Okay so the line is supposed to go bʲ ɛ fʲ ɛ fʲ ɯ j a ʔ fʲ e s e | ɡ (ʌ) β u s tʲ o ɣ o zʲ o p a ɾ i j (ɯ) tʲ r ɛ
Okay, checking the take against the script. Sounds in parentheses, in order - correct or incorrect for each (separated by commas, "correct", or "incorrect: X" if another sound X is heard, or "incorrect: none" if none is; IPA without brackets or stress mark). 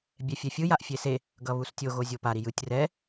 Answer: correct, correct